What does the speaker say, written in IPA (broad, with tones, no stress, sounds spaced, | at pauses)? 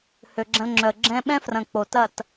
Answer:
h ø˨ ɡ͡ǁ ɐ̃˧ l ŋ͡ǁ œ˨ ə̯ ɡ͡ǁ ɛ̃˦ ɓ ɛ̃˦ f r ɐ̃˨ k͡p o˨ t ɐ˦˨ t